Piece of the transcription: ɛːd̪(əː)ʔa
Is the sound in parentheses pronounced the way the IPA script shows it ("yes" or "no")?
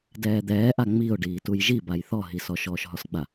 no